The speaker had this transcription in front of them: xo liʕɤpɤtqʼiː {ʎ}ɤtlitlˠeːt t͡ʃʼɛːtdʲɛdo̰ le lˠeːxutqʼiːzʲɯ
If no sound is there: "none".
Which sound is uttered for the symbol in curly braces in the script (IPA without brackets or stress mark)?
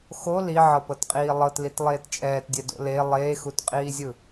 lˠ